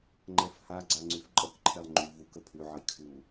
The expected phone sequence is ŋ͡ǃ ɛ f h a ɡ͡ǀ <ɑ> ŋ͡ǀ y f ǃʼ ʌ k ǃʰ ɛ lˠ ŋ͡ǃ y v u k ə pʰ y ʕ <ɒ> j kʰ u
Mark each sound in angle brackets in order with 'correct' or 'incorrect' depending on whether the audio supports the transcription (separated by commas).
incorrect, incorrect